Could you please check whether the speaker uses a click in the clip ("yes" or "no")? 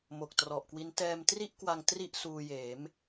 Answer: no